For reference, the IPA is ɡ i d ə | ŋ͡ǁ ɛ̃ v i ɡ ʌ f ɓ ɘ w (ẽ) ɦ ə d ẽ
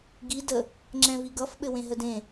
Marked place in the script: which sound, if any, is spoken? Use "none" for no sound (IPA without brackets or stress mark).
ẽ